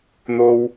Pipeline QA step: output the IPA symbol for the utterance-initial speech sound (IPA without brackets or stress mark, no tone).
n̪